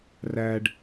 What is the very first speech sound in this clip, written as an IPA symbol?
r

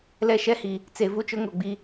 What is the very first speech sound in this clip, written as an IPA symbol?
l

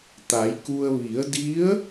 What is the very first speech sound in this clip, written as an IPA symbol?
t̪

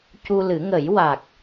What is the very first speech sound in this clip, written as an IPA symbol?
c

